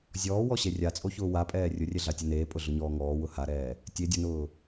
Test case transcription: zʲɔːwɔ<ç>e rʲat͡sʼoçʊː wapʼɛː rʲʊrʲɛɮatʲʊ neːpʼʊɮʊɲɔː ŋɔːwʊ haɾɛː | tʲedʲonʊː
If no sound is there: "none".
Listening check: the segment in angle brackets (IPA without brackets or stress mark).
ɕ